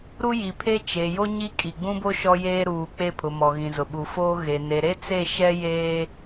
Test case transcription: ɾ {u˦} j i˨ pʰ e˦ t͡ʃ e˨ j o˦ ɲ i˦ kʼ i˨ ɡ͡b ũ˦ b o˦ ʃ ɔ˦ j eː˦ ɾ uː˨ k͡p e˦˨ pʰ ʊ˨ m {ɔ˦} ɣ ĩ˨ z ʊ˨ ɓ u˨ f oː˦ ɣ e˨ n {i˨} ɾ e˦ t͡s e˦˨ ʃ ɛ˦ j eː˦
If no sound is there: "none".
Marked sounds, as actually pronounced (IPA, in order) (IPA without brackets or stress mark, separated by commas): u˦, ɔ˨, e˨